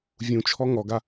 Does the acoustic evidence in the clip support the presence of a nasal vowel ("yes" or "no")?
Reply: yes